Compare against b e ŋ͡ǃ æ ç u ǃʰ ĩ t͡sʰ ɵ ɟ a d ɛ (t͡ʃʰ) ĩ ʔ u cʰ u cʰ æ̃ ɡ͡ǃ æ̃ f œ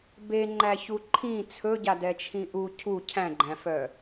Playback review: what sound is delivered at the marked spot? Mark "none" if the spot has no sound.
t͡ʃʰ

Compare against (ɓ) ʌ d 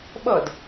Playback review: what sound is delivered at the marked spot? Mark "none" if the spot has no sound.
ɓ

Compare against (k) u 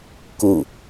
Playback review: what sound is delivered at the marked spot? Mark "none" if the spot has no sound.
k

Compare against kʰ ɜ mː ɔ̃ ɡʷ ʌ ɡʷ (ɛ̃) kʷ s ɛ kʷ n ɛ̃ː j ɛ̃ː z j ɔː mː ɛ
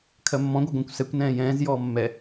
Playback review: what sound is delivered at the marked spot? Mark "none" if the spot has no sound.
ɛ̃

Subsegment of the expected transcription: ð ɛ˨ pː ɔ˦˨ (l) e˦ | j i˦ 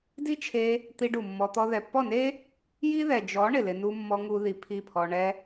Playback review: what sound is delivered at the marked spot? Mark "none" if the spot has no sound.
n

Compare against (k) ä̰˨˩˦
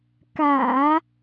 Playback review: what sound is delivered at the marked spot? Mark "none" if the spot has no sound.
k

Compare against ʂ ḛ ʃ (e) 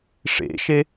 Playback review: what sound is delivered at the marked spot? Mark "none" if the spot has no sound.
e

